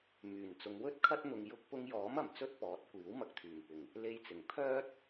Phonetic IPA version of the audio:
m yː˨˩ n t͡s ʊ˨˧ ŋ w ɵ˥ t̚ kʰ ɐ˥ t̚ n̪ ʊ˧ ŋ j ʊ˥ k̚ p ʊ˧ ŋ j ɔː˨˥ m ɐ˨˩ m t͡s ɵ˥ t̚ p ɔː˨˥ t̚ kʷ iː˨˥ w m ɐ˧ k̚ t̪ʰ yː˨˩ m p ɪ˨˩ ŋ | l e˧ j t͡s ɪ˨˩ ŋ pʰ œː˥ t̚

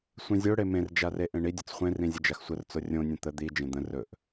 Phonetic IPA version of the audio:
sʷ ĩ zʲ o ɽ e m ẽ r d͡ʒ a r e ʔ ẽ ɳ i dʲ ɵ t͡s χʷ ẽ r ĩ zʲ ə d͡ʒ a x sʷ ə r t͡s o rʲ õ nʲ ə̃ t̪ ə d̪ i d͡ʒ ẽ d̪ ə̃ r ɵ ʔ

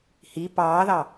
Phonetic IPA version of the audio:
h i p ɑː ð ɑ

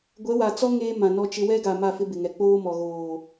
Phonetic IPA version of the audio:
ɡʷ ɛ˨˦ w a˨ t͡s ɔ˦ ŋ eː˦ m ã˨ n ɔ˦ t͡ʃ ɪ˦ w ɛ˦ ɡ a˨ m a˦˨ f ɪ˦ b ɪ˨ ŋ ɛ˨ k͡p oː˦ m ɔ˨ ɣ oː˨

